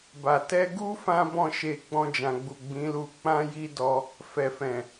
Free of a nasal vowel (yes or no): no